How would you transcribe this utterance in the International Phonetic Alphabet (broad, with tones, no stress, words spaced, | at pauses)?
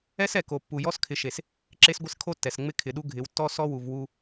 ɛ˦sɛ˨ko˨pːu˨ jɔ˦s kʰɪ˨ʃe˨s | ǁe˦sɡʷɪ˦s kʰo˦tːɛ˨sŋ͡mɪ˦ kʰɪ˨ɗu˦ ɡʱɪ˨˦wtːɔ˦ sɔ˦wu˨v wu˦